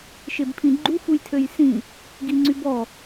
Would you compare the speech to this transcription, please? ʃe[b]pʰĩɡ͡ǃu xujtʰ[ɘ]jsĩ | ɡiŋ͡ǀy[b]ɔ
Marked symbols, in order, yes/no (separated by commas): yes, no, yes